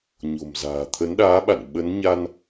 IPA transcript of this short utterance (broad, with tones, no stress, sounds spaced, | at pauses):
ɲ o̤˨˩ m z a̤ː˨˩ t̪ʰ ə˨˦ n ɗ aː˨˦ ɓ a̰˧˨ n ɓ ə˨˦ n ɲ a˧ n